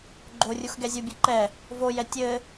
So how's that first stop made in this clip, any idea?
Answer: click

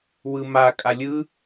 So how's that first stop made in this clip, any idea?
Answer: ejective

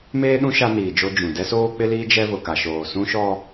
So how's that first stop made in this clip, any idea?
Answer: implosive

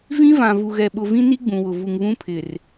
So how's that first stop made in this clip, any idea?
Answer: implosive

